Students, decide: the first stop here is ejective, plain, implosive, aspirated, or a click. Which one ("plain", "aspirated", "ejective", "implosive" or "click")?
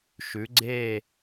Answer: click